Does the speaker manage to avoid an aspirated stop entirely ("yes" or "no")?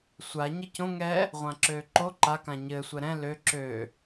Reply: yes